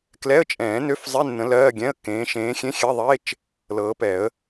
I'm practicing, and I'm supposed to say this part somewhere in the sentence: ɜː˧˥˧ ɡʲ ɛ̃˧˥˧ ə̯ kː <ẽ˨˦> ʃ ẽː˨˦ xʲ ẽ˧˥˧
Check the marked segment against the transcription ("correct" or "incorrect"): incorrect